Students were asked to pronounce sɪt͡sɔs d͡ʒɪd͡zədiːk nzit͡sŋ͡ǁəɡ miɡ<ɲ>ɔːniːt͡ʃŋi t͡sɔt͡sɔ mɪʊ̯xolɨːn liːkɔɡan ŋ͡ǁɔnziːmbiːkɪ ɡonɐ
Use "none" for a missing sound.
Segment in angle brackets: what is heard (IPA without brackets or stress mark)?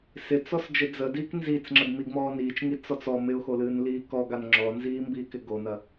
m